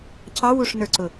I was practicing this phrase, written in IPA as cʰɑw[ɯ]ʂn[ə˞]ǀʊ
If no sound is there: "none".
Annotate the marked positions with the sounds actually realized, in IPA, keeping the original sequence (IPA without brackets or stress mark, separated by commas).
u, ə˞